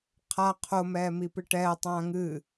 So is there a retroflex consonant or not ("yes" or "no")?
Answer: yes